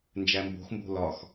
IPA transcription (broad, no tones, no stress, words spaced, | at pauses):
nd͡ʒæmbo̤xmbo̤ lɒx